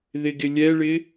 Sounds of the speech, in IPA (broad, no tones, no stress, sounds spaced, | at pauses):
ð ɪ ɡ ɪ lʲ ɛ ɭ ɪ